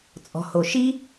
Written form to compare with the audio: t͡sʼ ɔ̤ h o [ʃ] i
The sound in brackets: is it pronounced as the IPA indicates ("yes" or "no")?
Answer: yes